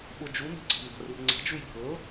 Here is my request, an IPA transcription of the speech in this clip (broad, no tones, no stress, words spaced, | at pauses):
ɓʊ d͡ʒunə̤ǀə̤ mba̤rurŋ͡ǀa̤ d͡ʒujbʱɤ